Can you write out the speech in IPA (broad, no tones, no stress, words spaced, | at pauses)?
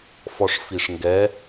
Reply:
fɔʂfiʂŋɡɛ